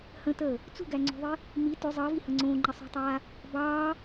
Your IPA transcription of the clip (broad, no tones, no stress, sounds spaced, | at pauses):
h ə̃ t əː | t͡s ṳ ɡ æ ŋ͡ǀ o̤ ðˤ i | m i t ʏ zˤ əː v i h ə̃ ŋ͡ǀ õː ŋ͡ǃ ə sˤ ṳ tˤ aː | b ɑː